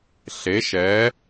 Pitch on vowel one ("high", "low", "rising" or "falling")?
rising